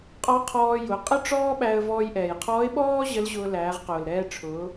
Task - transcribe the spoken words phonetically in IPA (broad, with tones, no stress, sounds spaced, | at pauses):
qʼ ɔ˧˥ qʰ ɔː˧ j ʊ˩˧ qʼ ə˥ ʈ͡ʂ ɔː˥ ɓ æ˧ ə̯ v ɔː˧ j ʔ ɛː˩ j qʰ ɔː˧˥ ɪ̯ ɓ ɔː˥ ʑ ə˧˥ l ʑ ʊː˧ l æː˩˧ ʁ q ʊː˩ l ɾ ɛː˧ ʈ͡ʂʰ ʊː˩˧